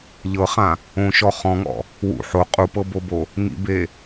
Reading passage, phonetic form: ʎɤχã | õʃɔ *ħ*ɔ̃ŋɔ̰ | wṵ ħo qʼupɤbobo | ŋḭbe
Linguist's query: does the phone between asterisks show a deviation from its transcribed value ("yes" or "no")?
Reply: yes